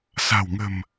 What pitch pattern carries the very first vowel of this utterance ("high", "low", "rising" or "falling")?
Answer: low